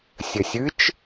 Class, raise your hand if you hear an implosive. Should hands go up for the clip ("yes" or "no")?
no